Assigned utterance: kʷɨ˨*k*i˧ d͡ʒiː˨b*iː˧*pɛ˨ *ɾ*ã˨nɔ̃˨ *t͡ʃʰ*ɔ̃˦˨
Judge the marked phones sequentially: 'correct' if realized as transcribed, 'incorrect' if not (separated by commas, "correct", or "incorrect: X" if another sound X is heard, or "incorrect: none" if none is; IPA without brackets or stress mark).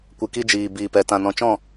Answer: correct, incorrect: iː˨, incorrect: t, incorrect: t͡ʃ